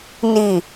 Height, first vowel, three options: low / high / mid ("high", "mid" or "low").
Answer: high